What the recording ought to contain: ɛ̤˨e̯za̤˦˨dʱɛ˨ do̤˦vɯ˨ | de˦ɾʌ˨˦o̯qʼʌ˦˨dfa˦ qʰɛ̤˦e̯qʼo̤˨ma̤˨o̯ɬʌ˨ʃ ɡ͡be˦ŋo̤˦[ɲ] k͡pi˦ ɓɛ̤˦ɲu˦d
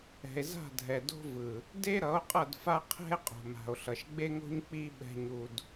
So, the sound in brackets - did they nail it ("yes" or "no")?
yes